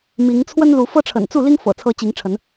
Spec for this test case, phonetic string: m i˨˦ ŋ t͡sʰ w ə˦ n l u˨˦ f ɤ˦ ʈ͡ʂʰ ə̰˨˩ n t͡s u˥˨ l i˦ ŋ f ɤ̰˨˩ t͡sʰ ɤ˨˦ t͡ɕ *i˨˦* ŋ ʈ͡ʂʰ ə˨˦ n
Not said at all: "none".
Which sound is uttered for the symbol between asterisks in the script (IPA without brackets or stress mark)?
i˨˦